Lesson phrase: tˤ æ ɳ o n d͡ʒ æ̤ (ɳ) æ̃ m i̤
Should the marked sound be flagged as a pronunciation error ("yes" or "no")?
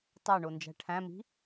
yes